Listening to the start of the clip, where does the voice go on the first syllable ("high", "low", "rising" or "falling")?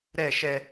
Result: falling